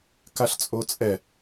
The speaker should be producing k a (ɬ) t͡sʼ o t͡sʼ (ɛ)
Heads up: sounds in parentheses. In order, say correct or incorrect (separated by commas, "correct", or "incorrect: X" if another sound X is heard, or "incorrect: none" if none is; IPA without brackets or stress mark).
correct, correct